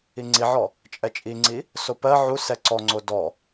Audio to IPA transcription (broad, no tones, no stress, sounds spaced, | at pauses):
i ŋ͡ǀ i ʕ ɔ | t͡ʃʼ ɛ t͡ʃʼ i ŋ͡ǀ i | s o p ɜ ʕ u s ɛ ǀ ɔ ŋ͡ǀ o d ɔ